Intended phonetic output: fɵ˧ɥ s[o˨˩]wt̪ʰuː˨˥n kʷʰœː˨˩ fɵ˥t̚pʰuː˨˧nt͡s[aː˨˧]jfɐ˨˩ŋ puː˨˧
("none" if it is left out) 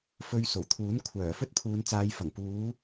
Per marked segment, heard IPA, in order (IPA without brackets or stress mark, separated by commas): o˨˩, aː˨˧